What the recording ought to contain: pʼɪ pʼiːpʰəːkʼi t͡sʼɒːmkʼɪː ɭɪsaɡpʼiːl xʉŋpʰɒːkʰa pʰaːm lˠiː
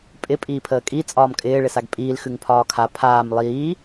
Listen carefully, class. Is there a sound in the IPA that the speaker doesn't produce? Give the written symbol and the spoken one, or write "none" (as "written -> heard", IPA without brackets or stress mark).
none